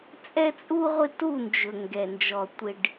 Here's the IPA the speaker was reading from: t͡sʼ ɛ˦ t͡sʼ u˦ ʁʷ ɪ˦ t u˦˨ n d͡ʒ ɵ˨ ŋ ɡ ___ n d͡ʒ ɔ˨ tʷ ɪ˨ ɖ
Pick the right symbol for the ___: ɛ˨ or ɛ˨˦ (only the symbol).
ɛ˨